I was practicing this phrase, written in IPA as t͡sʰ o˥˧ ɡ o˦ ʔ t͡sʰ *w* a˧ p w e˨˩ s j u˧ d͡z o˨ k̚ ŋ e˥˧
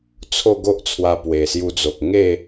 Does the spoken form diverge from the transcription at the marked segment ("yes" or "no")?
no